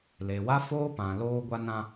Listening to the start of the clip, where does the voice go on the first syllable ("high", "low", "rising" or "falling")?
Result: low